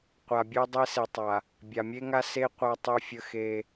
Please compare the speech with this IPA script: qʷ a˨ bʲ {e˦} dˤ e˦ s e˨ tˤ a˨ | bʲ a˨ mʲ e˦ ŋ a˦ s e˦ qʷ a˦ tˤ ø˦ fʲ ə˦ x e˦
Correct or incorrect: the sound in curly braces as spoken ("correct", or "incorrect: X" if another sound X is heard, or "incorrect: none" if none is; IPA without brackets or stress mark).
incorrect: ø˦